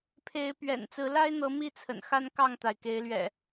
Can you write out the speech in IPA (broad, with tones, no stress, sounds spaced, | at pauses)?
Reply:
pʰ e˨˦ ɪ̯ p ɥ ɛ̰˨˩ n t͡s ɹ̩˨˦ l a˦ ɪ̯ n̪ ɤ˨˦ m i˥˨ t͡sʰ ə̰˨˩ n x a˦ n k ɑ˥˨ ŋ t̪ a˩ ɪ̯ k e˨˦ ɪ̯ l ɥ ɛ̰˨˩